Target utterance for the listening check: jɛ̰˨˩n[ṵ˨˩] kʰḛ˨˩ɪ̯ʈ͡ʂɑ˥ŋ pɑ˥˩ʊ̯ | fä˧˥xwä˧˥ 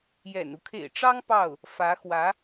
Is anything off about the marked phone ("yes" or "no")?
yes